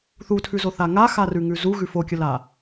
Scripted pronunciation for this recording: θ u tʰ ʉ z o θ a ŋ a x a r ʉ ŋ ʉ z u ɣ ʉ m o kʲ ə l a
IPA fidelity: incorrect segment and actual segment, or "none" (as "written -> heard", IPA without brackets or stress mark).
m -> f